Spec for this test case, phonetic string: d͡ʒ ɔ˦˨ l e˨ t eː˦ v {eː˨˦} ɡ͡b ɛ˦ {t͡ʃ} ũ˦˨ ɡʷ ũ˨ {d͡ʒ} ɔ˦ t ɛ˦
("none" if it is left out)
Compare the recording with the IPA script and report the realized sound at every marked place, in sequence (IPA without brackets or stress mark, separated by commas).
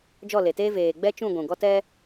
eː˨, t͡ʃ, ɡ